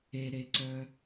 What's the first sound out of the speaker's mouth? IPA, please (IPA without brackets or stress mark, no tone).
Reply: e